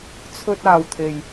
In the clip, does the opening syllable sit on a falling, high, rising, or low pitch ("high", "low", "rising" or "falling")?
high